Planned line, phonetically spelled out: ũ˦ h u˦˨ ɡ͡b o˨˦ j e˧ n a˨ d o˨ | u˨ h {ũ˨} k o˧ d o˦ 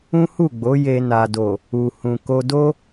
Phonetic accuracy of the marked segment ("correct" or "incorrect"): correct